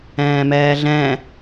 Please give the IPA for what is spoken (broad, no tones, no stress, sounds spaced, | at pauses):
ɛ̃ː m ɛː ɮ ɛ̃